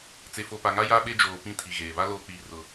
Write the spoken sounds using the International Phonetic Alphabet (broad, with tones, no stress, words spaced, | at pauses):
t͡se˨fo˨pa˨ŋa˦ ja˦ɓe˦d͡ʒoː˨ pĩ˦tʰi˨ɣeː˨ βa˦loː˨k͡piː˨rʊ˨